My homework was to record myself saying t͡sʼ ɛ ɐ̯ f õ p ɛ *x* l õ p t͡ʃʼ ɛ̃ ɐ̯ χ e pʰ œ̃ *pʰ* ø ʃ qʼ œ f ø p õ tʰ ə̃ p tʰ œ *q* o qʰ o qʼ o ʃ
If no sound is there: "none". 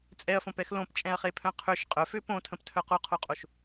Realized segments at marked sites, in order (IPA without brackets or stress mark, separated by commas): x, qʰ, q